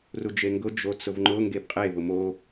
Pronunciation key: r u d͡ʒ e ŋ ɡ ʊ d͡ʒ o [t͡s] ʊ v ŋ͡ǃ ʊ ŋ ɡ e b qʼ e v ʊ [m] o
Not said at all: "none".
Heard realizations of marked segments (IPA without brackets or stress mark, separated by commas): t͡s, m